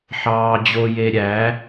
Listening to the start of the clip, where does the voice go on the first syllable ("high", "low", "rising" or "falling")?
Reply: low